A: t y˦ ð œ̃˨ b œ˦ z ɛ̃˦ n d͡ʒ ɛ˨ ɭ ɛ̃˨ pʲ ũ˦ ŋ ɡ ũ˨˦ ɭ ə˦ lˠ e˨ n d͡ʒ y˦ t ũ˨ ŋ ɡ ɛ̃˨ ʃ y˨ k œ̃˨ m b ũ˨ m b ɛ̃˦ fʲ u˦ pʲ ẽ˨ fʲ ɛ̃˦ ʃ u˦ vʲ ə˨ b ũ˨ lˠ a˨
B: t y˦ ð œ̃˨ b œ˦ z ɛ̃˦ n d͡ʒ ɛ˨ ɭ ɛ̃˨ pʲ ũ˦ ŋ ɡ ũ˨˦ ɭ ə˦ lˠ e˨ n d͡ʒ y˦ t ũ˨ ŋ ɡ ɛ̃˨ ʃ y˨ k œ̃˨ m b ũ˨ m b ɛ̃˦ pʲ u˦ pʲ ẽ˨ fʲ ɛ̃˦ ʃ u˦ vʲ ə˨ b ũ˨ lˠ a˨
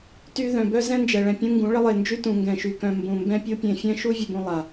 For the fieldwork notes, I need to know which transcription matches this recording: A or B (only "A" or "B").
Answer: B